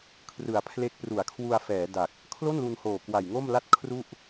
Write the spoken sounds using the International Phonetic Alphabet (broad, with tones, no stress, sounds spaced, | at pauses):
kʰ r ɯ˨˩ a̯ pʰ l e˦˥ k̚ p r u˩˦ a̯ kʰ w u˧ a̯ f ɛː˩˦ d a˨˩ k̚ | kʰ l o˥˩ n l u˧ n h oː˨˩ k w a˨˩ j ŋ o˥˩ m l a˥˩ t̚ kʰ r u˥˩ ʔ